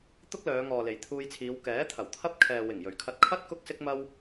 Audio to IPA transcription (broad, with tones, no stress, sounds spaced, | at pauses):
t̪ ʊ˥ k̚ l œː˨˧ ŋ ɔː˨ l e˨˩ j t̪ʰ uː˧ j t͡sʰ iː˨˧ w k ɛː˨˥ t̪ʰ ɐ˨˩ w t̪ʰ ɐ˥ p̚ kʰ ɛː˨ w ɪ˨˩ ŋ j ɵ˨˩ ɥ kʰ ɐ˧ t̚ kʰ ɐ˥ t̚ k ʊ˥ k̚ s ɪ˥ k̚ m ɐ˥ w